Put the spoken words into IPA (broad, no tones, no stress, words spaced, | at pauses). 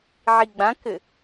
ʕiɡ͡bãkɘ